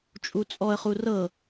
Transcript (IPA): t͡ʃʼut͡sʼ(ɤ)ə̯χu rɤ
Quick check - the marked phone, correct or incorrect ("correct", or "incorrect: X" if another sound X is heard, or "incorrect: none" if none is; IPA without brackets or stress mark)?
incorrect: ɔ